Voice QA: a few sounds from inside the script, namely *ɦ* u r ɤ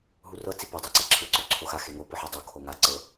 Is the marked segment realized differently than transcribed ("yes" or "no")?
no